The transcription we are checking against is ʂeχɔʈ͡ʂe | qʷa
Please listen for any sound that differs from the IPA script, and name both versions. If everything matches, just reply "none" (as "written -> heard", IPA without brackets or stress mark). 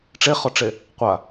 ʂ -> ʈ͡ʂ